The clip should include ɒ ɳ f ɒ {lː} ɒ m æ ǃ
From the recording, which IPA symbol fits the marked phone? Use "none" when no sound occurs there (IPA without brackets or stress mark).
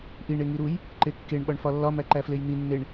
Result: lː